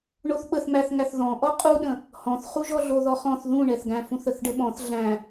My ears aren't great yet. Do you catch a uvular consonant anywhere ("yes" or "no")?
yes